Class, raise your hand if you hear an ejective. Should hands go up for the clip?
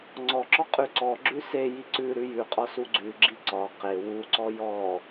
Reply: yes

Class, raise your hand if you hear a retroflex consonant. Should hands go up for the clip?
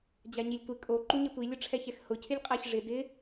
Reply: yes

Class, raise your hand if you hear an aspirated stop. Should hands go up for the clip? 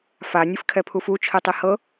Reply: yes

